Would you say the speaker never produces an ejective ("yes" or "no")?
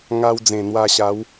yes